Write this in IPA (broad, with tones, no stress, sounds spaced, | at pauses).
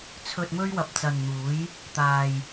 t͡sʰ ɵ˧ t̚ m ɵ˥ ɥ w ɐ˧ p̚ t͡s ɐ˨ n n̪ uː˨˧ j | t̪ aː˧ j